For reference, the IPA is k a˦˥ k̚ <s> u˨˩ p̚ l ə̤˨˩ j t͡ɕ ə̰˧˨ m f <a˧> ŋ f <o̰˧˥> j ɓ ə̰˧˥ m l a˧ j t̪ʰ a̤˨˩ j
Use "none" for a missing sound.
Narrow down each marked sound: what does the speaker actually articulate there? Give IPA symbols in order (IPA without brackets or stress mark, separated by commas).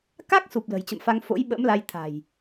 s, a˧, o̰˧˥